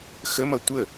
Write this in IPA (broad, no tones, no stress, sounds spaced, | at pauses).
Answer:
x ə m ʌ tʷ ə